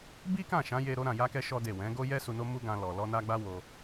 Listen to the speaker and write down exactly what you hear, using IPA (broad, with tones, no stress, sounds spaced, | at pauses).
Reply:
b i˦ k ã˦˨ ʃ ã˨˦ j e˧ ɾ o˧ ɾ ã˨ j a˧ k ɛ˧ ʃ ɔ˦ d e˦˨ w ɛ̃˨˦ ɡ o˦ j ɛ˦ s u˧ n o˦ m u˦ ɡ ã˧ l ɔ˨ l ɔ˧ n a˧ ɡ͡b a˦ w o˧